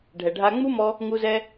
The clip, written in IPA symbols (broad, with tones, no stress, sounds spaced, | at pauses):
ɖʱ ɛ˩ ɖʱ a˧ ŋ͡m u˥ m ɔ˧ | ŋ u˧ z ɛ˧